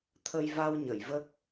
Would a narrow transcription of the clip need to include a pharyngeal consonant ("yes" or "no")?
no